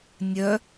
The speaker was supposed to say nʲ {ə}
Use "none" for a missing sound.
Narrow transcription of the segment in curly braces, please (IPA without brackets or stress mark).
œ